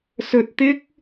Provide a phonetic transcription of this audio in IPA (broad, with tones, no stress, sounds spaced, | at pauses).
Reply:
s ɵ˧ t̚ t̪ ɪ˥ k̚